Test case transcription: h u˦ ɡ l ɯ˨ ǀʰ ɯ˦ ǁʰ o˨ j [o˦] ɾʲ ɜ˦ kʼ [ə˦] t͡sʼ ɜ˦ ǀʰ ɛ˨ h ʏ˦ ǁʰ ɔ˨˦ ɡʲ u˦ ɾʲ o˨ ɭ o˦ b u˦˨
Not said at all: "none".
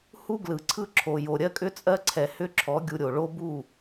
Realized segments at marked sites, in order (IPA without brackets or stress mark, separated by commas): o˨, ʏ˦